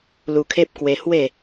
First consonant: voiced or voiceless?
voiced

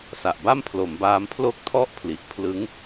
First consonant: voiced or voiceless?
voiceless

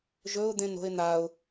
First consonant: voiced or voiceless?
voiced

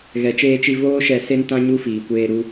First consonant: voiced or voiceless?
voiced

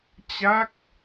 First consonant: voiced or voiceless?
voiceless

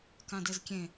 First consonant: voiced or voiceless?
voiceless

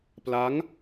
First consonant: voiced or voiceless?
voiceless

